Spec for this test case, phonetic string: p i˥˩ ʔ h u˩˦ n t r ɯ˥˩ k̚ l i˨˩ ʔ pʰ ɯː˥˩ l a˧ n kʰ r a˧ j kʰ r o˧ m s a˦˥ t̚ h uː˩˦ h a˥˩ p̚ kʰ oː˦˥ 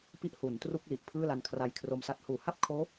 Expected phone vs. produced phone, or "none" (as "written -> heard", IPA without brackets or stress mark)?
ɯ˥˩ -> u˥˩